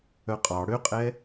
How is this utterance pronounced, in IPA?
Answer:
œqʼɑ ɽøqʼɛ

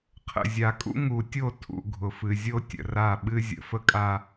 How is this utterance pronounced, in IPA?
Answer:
qʰə̰˨zʲa˨kʼṵ˦ ŋu˨tʲo˦˨ tʰṵ˨ɡʱʊ˨fɨ˨ zʲo˦ tʲə̰˨ra˦˨ ɓɨ˦zʲə̰˨ fə˦kʼa˦

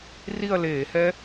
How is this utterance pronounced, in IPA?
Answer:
ri˥˧ɐ̯leː˧˩˧hɛ˦˥

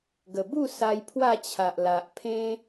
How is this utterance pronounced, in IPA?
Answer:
ɡə˨˩bu˥˧ sa˧jpʰwa˥˧ t͡ɕʰa˨ʔla˨ʔpʰẽ˦

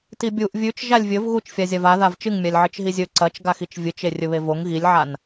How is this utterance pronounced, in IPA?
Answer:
tibʲuʔ vʲʉt͡ʃ ʒalʲvʲɵv ɣut͡ʃfʲazʲav a ðavt͡ʃɨŋmʲalʲ ʕɨt͡ʃɦizʲɵ ǀɐt͡ʃɡaxit͡ʃ vʲɨt͡ʃe rʲɵβevoŋ ɣilʲʕan

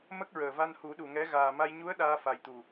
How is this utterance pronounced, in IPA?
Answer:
mə˦˥k̚ɹəː˨˩va˧nhu˨˩˦ ɗu˨˩ŋɛ˧˥ ɣaː˨˩ma˧j ɲu˧˥ə̯ ɗaː˧fa˨˩j t̪u˨˩

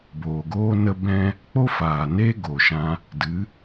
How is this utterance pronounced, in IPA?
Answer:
boː˨ɡoː˦ nə˦bɛ̃˦ | k͡po˦faː˨neː˦ ɡo˨ʃã˧ | dɨ˨˦

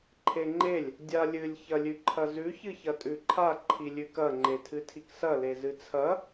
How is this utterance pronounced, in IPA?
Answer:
ǃʰeŋ͡ǃelʲ | dʲalʲɨlʲ çɐlʲʉǃʰɐzʉ çɨçɐtʼʉǃʰa ǃʰilʲʉkɐ ŋ͡ǃetʰɨtʰiksɐ lezɨt͡sʰɐ

